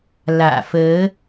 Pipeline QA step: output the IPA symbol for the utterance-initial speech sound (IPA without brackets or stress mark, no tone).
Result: l